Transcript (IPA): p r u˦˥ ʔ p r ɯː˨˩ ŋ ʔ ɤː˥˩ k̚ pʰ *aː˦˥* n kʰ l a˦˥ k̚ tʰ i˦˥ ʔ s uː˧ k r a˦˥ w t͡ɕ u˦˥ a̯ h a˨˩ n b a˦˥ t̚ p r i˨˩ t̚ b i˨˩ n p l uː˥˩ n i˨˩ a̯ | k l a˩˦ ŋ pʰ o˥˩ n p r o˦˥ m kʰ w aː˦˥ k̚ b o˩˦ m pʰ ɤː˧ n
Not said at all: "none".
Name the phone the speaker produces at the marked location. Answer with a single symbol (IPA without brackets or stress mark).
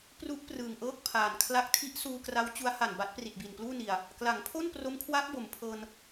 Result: aː˨˩